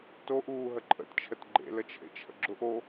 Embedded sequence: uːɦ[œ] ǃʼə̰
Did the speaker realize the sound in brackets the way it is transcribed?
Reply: no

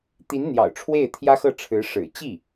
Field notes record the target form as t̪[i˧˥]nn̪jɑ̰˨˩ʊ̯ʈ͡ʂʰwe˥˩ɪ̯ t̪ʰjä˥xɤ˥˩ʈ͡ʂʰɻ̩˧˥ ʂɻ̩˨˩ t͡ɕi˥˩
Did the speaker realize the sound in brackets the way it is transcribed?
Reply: yes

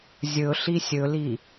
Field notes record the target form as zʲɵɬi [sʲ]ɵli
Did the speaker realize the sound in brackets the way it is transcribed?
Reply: yes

